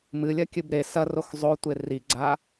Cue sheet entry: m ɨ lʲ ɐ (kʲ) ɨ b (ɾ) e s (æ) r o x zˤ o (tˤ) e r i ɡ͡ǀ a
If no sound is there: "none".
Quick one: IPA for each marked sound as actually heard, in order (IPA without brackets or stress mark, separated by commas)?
kʲ, ɾ, ɐ, tʷ